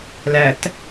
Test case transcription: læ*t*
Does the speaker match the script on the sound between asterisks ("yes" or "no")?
yes